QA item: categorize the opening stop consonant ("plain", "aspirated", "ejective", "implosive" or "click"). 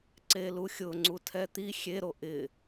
click